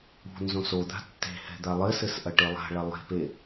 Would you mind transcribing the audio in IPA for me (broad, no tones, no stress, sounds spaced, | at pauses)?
ṳ n z õ s o d̪ a̤ tː e̤ h ɛ̤ d̪ a lˠ ɘ s ɘ s ʔ ɐ ʈ e lˠ a̤ ɭ ɐ lˠ e̤ p e